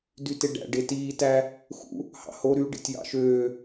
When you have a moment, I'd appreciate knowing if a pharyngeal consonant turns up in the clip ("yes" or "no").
no